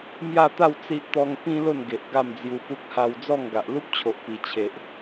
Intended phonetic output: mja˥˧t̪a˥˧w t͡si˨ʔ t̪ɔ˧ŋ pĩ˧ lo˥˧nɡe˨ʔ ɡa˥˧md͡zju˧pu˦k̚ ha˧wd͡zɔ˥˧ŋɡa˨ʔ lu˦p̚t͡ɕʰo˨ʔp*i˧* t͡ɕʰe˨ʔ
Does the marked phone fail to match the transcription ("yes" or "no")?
yes